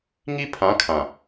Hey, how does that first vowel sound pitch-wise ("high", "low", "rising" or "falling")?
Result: high